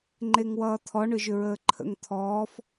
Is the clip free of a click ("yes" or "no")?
no